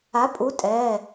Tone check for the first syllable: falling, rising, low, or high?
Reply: rising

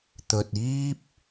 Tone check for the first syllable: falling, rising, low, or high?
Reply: low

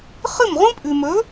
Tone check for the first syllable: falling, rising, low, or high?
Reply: falling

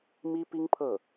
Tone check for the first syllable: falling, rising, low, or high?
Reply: high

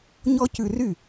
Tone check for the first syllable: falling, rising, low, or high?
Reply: high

